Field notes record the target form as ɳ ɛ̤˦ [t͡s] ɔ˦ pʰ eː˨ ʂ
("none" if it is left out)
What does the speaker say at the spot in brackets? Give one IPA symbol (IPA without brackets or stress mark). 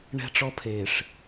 ʈ͡ʂ